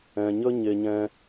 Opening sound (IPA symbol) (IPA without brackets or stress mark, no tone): ɛ̃